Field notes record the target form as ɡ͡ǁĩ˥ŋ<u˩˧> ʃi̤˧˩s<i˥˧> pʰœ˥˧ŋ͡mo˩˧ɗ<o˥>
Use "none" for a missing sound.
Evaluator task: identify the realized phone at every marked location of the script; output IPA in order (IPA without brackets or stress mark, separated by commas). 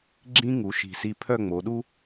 u˩˧, i˥˧, u˥